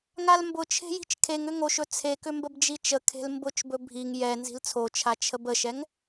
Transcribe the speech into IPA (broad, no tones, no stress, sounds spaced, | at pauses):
ŋ a l m b ʊ t͡ʃʰ e̤ j i̤ t͡ʃ kʰ e ŋ ʏ ŋ o ʃ ɵ t͡sʰ e k ʏ m b ə b d͡ʒ i t͡ʃ ə kʰ e̤ l m b ʊ t͡ʃ b ɵ bʱ i ŋ j ɛ n z i̤ l t͡sʰ o t͡ʃʰ a t͡ʃʰ ə b ə ʃ ɛ ŋ